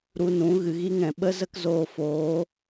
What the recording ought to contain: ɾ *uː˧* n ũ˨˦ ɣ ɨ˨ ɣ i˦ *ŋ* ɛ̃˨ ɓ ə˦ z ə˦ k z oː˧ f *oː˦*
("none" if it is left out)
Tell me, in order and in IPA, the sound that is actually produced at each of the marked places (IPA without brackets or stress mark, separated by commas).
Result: u˧, ŋ, oː˨˦